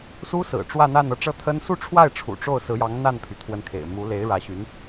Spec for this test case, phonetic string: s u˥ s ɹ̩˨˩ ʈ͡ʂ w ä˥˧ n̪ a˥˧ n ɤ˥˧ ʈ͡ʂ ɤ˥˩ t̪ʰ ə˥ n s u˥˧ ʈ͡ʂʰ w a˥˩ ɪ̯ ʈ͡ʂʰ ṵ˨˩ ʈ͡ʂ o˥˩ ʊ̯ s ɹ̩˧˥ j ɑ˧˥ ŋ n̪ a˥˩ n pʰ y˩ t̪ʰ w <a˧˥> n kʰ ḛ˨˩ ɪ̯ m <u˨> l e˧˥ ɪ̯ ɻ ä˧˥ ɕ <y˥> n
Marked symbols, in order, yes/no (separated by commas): no, no, no